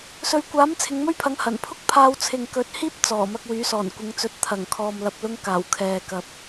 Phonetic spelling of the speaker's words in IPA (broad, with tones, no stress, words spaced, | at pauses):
sɵ˨ɥkʷaː˨˥m t͡sʰɪ˨˧ŋmɵ˥ɥpʰɐ˨˥ŋ hɐ˨˩n pʰʊ˥k̚pʰaː˧w t͡sʰɪ˨ŋ kɵ˨˥t̚hiː˥p̚ t͡sɔː˨˩mɐ˧k̚ wyː˨˥sɔː˨˩n kʷɪ˨˧ŋt͡sɵ˨˥t̚t̪ʰɐ˨˩ŋkʰɔː˨m lɐ˨p̚lʊ˧ŋ kaː˨˩wkʰɛː˨kɐ˨p̚